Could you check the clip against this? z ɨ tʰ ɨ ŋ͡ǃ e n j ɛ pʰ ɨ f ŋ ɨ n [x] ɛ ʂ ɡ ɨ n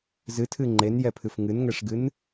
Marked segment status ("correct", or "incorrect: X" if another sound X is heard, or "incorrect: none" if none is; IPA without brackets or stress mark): incorrect: ŋ